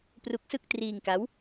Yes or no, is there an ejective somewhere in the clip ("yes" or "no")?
no